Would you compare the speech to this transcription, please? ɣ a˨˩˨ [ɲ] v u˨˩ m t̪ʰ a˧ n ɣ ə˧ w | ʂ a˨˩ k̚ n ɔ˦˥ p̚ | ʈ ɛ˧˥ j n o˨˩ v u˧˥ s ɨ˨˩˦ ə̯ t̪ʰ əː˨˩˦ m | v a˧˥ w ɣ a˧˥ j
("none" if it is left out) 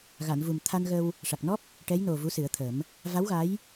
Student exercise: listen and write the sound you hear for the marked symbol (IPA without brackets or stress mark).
n